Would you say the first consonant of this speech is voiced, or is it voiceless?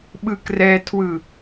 voiced